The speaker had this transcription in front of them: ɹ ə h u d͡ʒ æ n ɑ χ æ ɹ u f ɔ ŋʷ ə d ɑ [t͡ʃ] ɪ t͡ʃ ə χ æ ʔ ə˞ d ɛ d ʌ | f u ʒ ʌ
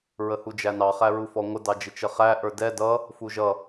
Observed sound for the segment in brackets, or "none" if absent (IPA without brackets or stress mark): d͡ʒ